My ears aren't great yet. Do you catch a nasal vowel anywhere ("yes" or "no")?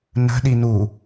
no